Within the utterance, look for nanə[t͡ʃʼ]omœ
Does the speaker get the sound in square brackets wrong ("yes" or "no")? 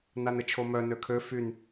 yes